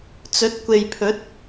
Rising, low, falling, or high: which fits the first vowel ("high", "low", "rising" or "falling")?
rising